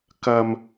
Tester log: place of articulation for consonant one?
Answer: velar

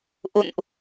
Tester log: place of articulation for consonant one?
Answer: glottal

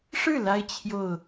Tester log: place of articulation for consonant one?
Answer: retroflex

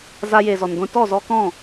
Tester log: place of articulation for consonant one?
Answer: alveolar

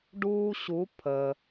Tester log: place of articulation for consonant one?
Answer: retroflex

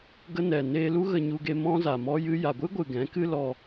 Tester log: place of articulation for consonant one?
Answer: velar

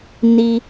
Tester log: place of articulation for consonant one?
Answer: alveolar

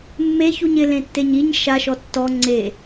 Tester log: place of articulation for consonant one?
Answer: labial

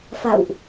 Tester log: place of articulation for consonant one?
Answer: labial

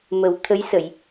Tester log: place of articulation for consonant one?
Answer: labial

